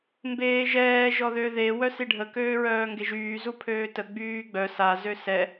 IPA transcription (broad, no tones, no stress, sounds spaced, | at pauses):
m b eː ʒ ɛː ʒ ɔ ð ø ð e w œ s i ɖʱ ə k øː ɹ œː ŋ ɡ e ʒ yː z u pʰ øː t ə ɡ͡b yː ɡ͡b œ s a z ø s ɛ